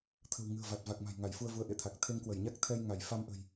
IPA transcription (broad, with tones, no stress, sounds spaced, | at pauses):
t̪ʰ ə̤˨˩ w ŋ ɨ̤˨˩ ə̯ v a˨˩ t̚ v a˨˩ k̚ m a̤˨˩ j ŋ a˧˩ j f u˧ ə̯ v u˨˦ ə̯ ʔ ḛ˧˨ t̪ʰ a˨˩ k̚ t̪ʰ e˧ ŋ k w ə˧˩ j ɲ a˦˥ k̚ t̪ʰ ɛ˧ j ŋ a˧˩ j f a˧ m ʔ ə̤˨˩ j